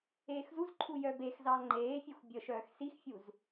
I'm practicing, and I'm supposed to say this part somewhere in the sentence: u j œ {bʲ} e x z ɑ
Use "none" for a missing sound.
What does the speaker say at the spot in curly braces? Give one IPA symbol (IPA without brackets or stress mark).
b